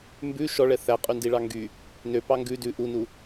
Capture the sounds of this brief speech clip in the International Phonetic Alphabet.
m b ʉ ʃ ɔ ɭ ɛ θ æ qʼ ʉ n d i ɭ ɑ ŋ ɡ y | n ø p ɑ ŋ ɡ ʉ d ʉ ʔ u n u

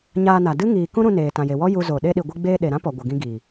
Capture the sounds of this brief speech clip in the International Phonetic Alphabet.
ɲ aː˧ n a˨ d ɨ˦ ŋ iː˨ k ũ˦ ɾ ũ˧ n eː˨ t ã˨ j e˨ w ɔ˦ j u˧ z o˨ ɗ e˧ ɗ i˨ ɡʷ ɨ˧ ɡ͡b eː˧ ɗ e˨ ɾ ã˦ p ɔ˨ ɡʷ ə˨ ɡ ĩ˧ ɡ iː˨

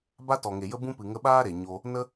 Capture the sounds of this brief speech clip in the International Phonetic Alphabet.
b a˦ t ɔ˨ ŋ e˨ j ə˦ b ũ˦ p ɨ˨ ŋ ə˧ ɓ aː˦ ɾ e˨ ɲ o˧ | n ə˦

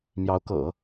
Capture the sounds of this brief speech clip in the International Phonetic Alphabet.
m j ɑ˧˥ ʊ̯ k ɤ̰˨˩˦

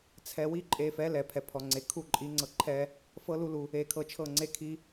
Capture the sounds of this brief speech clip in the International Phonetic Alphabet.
t͡sʰ ɛ˧ w i˦ ǃʼ e˧ f ɛ˨˦ l ɛ˨ pʰ ɛ˨ pʰ ɔ˨ ŋ͡ǀ e˨ kʰ u˦˨ ǃʼ i˨˦ ŋ͡ǀ ɤ˧ ǃʰ ɛ˦ | f ɤ˦ l u˦ l u˧ | e˧ kʰ ɤ˧ t͡ʃʰ ɤ˦˨ ŋ͡ǀ e˧ kʰ i˧

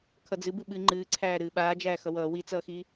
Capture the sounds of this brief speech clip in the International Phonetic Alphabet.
kʰ ʌ d͡z ɨ b ɨ ɓ ɨ ŋ͡ǃ ɨː ǀʰ æː ɾ ɨː ɓ aː d͡ʒ æː x ʌ w ʌː w i t͡s ʌː x i

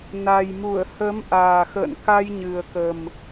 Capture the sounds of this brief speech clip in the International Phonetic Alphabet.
n a˨˩ j m u˧˩ ə̯ h ə˨˦ m ʔ aː˨˩ x ə̰ː˧˨ n k a˧ j ɲ ɨ˨˩ ə̯ k ə˨˩ m

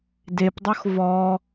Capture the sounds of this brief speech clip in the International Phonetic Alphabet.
d e p dˤ o x v ɔ

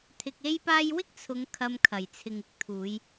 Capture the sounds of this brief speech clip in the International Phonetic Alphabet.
t̪ʰ ɪ˧ k̚ e˥ j p aː˥ j w ɪ˥ k̚ t͡sʰ ʊ˨˧ ŋ kʰ ɐ˧ m kʰ ɐ˨˩ j t͡sʰ ɪ˨ ŋ ɪ˥ k̚ t̪ʰ uː˨˧ j

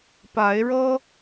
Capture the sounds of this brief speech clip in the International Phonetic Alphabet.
p a˨˦ ɪ̯ ɻ ɤ˦

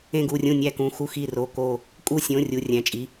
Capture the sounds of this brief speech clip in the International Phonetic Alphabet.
ẽ˧˩ ɡ u˧˩ rʲ ũ˧˩ nʲ æ˧˩ k ũ˩˧˩ x u˧˩ x i˧˩ r o˩˧˩ k o˧˩ | kʼ u˧˩ sʲ õ˩˧˩ rʲ u˩˧˩ rʲ æ̃˩˧˩ t͡ʃʼ i˩˧˩

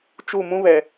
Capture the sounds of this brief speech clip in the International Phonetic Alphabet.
t͡ʃ u˦˨ m ũ˦ β ɛ˨

